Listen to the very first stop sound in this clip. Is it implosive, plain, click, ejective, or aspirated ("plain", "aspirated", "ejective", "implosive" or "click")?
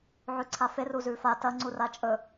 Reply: click